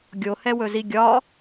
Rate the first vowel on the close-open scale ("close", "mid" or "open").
mid